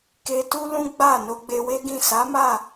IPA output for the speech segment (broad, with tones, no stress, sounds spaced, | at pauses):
k e˧ t u˦ l ũ˦ ɡ͡b a˦˨ n o˧ ɡ͡b e˧ w e˦ ɡ ĩ˦˨ s a˨˦ m a˦˨